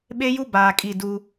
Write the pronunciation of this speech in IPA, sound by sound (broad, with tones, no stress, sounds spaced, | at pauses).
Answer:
ɓ e˦ j u˦ b aː˨ kʼ i˦˨ d u˦